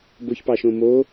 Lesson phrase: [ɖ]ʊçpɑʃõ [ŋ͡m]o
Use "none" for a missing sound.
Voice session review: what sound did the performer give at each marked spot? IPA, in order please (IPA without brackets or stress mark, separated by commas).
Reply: b, m